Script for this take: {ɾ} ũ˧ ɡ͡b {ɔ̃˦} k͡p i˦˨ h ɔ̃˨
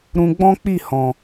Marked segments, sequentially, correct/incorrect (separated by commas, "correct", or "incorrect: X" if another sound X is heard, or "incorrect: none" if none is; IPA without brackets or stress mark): correct, correct